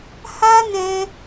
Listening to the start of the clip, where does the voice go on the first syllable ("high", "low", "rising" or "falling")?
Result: high